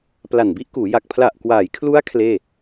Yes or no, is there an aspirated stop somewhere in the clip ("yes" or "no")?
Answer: yes